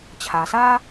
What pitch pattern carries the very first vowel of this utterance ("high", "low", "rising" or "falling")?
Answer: low